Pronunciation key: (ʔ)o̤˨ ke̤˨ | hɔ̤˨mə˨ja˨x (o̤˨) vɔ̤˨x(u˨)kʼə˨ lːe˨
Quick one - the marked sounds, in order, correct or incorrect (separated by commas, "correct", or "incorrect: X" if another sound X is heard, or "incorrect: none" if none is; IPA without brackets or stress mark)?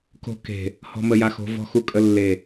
incorrect: k, correct, correct